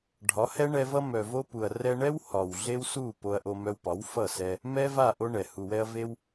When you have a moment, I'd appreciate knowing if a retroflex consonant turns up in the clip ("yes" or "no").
yes